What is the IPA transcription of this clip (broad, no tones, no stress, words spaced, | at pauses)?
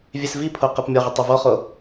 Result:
vʲesvipʰo qepmʲɔʁə tˤɛvɔχo